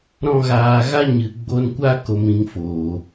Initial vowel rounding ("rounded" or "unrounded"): rounded